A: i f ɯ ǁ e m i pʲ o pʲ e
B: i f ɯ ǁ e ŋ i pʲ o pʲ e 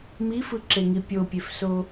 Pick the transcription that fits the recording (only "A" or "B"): B